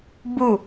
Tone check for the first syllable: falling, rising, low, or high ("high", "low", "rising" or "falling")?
falling